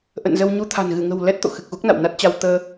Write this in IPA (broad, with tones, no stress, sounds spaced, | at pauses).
ʔ ə̰˧˨ n z ə˧ w ɲ u˧ t̪ʰ a̤˨˩ n ɣ ɨ˧˩ ŋ ə̤˨˩ w l ɛ˦˥ t̚ t̪ o̰˧˨ x ɨ˨˩ k̚ ɣ u˦˥ k̚ n a̰˧˨ w n a˦˥ t̚ t͡ɕ a˧ w t̪ əː˧